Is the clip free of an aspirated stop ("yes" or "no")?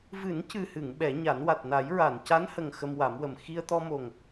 yes